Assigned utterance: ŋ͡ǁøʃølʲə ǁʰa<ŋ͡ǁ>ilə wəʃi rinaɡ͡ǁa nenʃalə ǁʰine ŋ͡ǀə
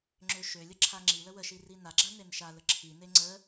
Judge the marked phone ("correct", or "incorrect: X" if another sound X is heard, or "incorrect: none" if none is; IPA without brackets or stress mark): correct